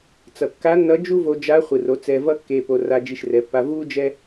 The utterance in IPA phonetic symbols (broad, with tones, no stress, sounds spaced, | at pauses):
t͡s ʌ˩ kː a˧˥ nː ʌ˧˥ d͡ʒ u˥ v o˧ d͡ʒ a˧˥ χʷ ɯ˩ r o˩˧ t͡s ɛ˧ v ʌ˥ kː e˧ p o˧ r a˧ d͡ʒ i˧ ʃ r ɛ˩˧ pː a˧ v u˥ d͡ʒ ɛ˥